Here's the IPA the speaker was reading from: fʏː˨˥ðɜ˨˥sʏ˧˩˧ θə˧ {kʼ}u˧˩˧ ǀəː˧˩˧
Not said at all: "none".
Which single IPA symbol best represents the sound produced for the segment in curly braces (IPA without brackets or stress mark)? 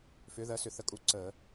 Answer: kʼ